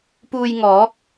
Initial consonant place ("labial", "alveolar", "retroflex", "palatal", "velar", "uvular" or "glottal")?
labial